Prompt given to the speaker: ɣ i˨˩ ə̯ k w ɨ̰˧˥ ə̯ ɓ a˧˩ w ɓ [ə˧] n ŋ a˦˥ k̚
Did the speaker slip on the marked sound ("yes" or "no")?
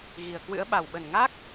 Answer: yes